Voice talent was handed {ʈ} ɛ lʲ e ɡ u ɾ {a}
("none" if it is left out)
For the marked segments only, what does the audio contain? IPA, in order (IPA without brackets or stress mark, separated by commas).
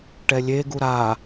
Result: ʈ, a